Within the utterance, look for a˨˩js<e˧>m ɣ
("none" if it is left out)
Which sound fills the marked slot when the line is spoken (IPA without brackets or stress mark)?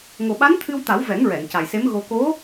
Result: e˧˥